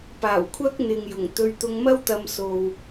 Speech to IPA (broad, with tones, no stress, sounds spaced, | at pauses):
p aː˨˩ w kʷʰ ɐ˥ k̚ n̪ ɪ˨ ŋ j ʊ˨˩ ŋ t̪ ɵ˧ ɥ t̪ ʊ˧ ŋ m ɐ˥ w t̪ ɐ˧ m s o˨ w